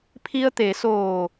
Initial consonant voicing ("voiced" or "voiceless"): voiceless